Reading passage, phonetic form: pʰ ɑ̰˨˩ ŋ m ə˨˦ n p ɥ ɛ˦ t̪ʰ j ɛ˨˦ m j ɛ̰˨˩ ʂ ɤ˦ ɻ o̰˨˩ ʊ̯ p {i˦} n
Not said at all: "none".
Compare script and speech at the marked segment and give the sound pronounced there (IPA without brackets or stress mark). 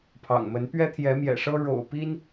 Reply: i˦